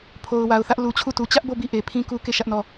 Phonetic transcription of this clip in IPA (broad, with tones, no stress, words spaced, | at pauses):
pʰo˨ʊ̯wa˨ʊ̯θä˦ʔ lu˨t͡ɕʰu˦˨tu˨ t͡ɕä˦ʔbo˦˨bi˦˨ ʔe˨pʰĩ˦ku˦ ke˦˨ ʃä˦ʔnɔ˦˨